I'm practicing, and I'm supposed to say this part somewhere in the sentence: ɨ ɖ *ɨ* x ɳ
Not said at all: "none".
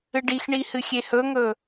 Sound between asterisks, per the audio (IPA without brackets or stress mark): i